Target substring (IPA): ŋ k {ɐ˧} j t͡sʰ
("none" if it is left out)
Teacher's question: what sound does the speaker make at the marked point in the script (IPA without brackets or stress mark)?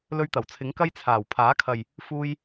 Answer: ɐ˧